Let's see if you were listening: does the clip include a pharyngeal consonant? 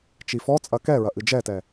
no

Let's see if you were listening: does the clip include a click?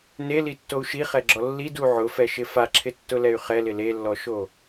yes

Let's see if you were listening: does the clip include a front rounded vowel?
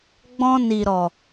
no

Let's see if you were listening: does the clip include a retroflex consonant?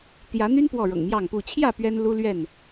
yes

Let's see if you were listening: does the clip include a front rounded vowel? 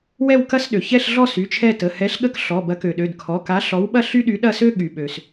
yes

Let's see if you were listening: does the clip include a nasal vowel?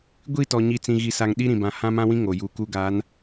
yes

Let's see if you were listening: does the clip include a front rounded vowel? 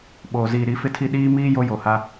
no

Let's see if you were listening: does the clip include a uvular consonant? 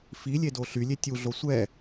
no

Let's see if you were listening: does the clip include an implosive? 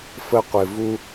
no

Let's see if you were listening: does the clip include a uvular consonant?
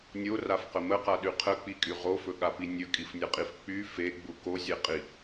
yes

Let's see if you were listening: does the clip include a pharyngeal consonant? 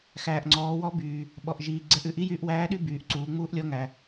no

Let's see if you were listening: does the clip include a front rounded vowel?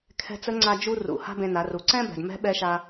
no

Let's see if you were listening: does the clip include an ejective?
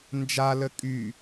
yes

